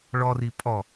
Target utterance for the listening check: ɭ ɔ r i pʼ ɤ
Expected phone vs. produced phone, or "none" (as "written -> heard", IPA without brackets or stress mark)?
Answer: ɤ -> ɔ